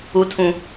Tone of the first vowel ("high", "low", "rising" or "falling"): high